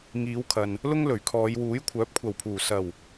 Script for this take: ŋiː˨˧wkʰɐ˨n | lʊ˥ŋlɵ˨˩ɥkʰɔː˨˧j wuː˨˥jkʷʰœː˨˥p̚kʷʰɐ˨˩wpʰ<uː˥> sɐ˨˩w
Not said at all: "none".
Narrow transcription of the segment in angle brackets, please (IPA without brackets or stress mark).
uː˨˩